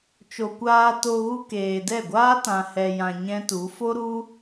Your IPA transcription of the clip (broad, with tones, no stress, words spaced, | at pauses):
t͡ʃo˨kʷaː˧to˧ɣu˧ keː˨ dɛ˦˨ɡʷaː˦tã˨ hɛ˨jã˨ ɲɛ̃˦tu˨˦ fo˦ɾu˦